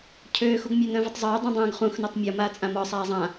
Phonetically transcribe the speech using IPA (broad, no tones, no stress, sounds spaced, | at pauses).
cʰ øː x u ɡ mʲ ø n œ̃ v œ tˤ zˤ øː dˤ ũ dˤ œ̃ː ɡ χ ũ x n ø tˤ mʲ ɔ m aː t͡sʼ ã m ɔ sˤ aː zˤ ã